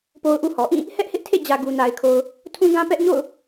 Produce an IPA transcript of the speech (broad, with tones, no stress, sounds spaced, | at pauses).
p o˦ ʊ̯ ʔ u˦ h ɔ˨ ʔ ĩ˦˨ | h ɛ˦ ʔ h ɪ˦ ʔ tʰ ḛ˦˨ d͡ʑ ä˨ ɡ u˨ n a˨ ɪ̯ kʰ o˨ ʊ̯ | tʰ ũ˦ ɡ ã˦ p ɛ˦ ʔ ɲ o̰˦˨ ʊ̯